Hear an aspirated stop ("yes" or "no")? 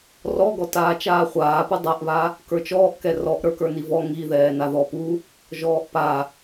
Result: no